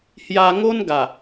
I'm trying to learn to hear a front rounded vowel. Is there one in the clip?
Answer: no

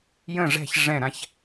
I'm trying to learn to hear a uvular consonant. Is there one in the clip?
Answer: no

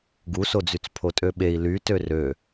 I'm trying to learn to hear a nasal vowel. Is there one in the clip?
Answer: no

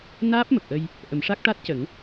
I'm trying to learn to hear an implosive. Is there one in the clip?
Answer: no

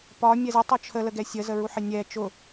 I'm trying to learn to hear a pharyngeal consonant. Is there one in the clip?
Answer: yes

